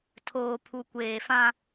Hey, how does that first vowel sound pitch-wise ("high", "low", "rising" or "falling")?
low